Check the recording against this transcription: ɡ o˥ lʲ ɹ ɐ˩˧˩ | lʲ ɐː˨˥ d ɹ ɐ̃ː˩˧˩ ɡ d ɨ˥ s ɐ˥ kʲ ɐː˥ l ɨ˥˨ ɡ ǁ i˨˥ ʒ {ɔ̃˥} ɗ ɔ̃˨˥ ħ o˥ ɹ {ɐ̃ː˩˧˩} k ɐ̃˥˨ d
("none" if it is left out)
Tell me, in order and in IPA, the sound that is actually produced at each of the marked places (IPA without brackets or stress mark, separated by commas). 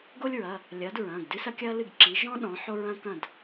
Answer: ɔ̃˥, ɐ̃ː˥